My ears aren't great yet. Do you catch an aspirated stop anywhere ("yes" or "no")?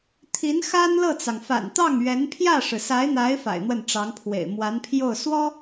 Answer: yes